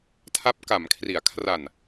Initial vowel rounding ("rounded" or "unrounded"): unrounded